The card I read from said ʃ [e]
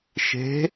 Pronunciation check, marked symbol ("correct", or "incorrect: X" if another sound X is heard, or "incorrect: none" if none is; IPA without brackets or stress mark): incorrect: e̤